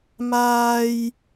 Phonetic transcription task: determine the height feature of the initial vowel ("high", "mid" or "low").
low